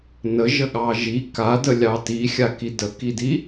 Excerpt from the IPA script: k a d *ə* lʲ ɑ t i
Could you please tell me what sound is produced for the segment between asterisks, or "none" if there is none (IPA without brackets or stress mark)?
ə